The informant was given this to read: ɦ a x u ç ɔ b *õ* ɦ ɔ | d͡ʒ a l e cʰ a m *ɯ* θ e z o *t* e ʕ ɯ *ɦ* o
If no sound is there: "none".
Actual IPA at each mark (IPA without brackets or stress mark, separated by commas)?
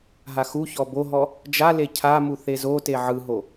o, u, t, ɦ